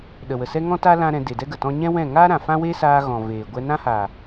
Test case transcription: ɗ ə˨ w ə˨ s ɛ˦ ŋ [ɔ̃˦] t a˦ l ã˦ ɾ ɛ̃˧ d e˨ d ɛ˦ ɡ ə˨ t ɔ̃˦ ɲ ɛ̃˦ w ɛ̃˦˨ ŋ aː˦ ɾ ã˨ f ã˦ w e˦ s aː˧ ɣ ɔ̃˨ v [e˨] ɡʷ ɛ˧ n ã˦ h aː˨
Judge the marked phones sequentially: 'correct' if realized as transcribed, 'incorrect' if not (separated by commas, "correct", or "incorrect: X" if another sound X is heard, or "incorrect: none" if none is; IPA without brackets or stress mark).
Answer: correct, incorrect: eː˨